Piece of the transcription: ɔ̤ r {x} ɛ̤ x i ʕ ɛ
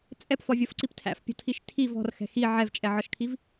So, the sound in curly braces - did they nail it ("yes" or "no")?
yes